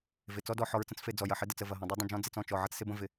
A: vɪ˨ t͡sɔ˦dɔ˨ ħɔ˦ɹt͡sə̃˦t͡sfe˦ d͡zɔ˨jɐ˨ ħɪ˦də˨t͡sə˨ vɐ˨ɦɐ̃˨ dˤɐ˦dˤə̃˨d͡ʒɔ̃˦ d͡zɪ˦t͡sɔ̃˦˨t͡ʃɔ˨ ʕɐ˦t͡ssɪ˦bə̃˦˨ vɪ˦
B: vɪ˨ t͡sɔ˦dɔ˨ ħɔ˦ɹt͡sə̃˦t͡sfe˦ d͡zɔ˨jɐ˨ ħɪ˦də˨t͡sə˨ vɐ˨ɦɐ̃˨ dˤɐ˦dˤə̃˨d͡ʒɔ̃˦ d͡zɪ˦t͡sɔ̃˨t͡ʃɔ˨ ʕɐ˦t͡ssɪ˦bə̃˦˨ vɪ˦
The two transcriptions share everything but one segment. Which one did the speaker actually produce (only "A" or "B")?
A